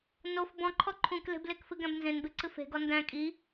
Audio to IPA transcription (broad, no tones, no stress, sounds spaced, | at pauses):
n o f b ɔ̃ ǃʰ ɔ ǃʰ ũ k l e̤ b l e k f ɨ ɡ æ̃ b n z ẽ n b e ǀ ɨ f e̤ ɡ ɔ n d æ̃ kʼ i